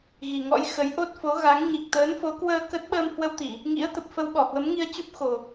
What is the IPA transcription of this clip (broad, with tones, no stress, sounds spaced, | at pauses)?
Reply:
ɣ i˨˩ ŋ ɔ̰˧˥ j x ə˨˦ j ʔ o˦˥ t̚ f o˨˦ ɣ a˨˦ ŋ ɲ i˨˩ k̚ t̪ əː˨˦ n f o˨˦ k w əː˧ k ə˦˥ t̚ ɓ əː˧ m h w ə˧ w t̪ i˧˩˨ | ŋ ḭ˧˥ ə̯ t̪ ə˨˩ p̚ f ə˧ w ɓ ɔ˧˩ h w ə˨˦ m ŋ i˧ ə̯ t͡ɕ u˦˥ p̚ x o˨˩